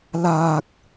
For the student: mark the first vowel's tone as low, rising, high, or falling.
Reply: low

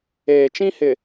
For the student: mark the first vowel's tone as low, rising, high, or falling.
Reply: low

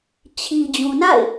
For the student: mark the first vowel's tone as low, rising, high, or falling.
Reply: low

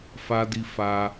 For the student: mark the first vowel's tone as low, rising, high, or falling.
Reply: high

